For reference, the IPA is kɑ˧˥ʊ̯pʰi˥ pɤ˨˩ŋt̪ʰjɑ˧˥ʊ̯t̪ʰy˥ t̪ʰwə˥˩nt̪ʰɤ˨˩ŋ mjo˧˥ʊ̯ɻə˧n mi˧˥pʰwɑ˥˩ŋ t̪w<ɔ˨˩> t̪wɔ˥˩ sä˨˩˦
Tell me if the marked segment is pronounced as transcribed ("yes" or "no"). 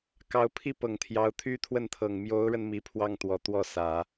yes